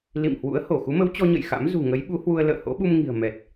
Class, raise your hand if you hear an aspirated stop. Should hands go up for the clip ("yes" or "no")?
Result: no